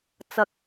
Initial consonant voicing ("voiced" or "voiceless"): voiceless